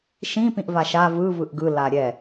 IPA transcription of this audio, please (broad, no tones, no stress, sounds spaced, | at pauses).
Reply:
ʃ ĩ p ĩ ʔ v a ʃ a v ɯ v ɯ ʔ ɡ ɯ l a ɾʲ ɛ